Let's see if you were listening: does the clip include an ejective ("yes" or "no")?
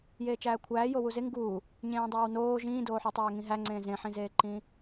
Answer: no